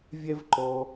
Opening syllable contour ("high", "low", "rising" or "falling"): high